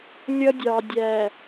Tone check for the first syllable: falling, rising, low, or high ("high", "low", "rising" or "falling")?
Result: high